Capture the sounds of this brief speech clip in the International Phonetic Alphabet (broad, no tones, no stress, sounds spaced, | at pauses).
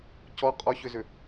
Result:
c ɔ qʼ ɔ ç ʏ z ʏ